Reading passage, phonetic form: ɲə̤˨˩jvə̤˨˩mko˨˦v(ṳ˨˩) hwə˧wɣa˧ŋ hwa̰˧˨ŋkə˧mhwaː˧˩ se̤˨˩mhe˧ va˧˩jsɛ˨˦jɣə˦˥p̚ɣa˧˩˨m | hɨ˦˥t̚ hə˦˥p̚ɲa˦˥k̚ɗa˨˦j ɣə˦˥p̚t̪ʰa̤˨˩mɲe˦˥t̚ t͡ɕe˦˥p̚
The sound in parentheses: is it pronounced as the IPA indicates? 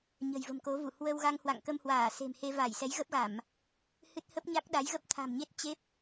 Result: no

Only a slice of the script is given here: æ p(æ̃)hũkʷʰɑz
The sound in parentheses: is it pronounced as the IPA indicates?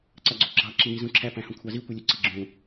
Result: yes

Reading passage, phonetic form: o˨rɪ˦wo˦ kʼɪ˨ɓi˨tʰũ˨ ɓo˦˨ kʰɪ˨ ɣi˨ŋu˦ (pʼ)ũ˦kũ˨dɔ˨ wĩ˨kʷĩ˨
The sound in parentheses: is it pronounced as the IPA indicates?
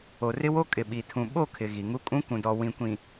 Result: no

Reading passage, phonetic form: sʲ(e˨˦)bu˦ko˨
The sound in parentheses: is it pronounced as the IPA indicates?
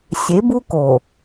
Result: yes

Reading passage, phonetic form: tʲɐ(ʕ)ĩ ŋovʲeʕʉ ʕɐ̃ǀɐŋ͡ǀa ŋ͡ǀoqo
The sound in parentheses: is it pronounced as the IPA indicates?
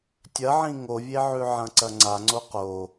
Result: yes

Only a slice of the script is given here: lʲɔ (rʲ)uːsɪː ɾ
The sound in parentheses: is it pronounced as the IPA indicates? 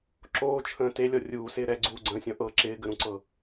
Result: yes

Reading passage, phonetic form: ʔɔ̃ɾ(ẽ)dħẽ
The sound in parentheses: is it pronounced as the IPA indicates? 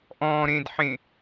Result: yes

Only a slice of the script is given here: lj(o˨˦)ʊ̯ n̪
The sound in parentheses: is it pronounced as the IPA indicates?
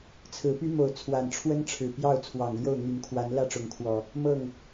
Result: no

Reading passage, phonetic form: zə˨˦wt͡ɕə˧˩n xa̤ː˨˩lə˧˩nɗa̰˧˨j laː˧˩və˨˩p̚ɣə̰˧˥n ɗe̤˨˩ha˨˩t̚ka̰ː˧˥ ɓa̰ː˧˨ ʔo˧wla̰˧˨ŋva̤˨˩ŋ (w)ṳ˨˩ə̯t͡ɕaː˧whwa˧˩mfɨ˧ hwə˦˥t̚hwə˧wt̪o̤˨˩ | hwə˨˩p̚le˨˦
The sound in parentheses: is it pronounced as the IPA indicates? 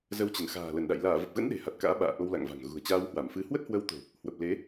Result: no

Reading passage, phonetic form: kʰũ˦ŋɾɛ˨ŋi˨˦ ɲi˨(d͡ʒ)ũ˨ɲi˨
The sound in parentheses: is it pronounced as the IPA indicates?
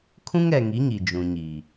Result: yes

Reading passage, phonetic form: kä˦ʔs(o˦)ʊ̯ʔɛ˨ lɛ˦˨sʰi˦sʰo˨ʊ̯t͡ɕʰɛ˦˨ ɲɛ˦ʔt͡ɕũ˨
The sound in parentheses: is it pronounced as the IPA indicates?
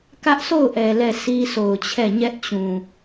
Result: no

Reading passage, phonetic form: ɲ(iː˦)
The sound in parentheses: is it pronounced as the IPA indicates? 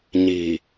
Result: no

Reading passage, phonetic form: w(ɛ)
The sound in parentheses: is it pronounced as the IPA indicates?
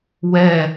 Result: yes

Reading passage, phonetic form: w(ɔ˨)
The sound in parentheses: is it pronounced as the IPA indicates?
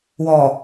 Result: yes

